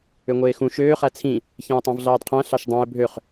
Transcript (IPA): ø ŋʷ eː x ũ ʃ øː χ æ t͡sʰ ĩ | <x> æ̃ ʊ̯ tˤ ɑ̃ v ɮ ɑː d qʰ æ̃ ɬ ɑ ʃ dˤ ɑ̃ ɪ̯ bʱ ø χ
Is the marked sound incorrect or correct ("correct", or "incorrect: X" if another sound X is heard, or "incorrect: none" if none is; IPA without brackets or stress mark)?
incorrect: ç